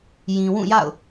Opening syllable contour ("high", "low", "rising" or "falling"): low